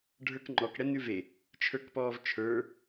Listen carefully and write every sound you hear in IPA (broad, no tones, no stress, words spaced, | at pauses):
ɖʱə˞kŋ͡ǃɔkɽɛ nʉve | t͡ʃʰə˞kpɔːvt͡ʃʰə˞